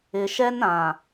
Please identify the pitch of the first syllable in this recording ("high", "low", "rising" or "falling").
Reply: low